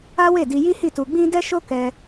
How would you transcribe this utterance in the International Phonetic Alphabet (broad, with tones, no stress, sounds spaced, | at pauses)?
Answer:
a˦ w e˦˨ d i˧ j i˦ h i˦˨ t u˧ ɡ͡b ĩ˦ d ɛ˦ ʃ o˦ k ɛ˧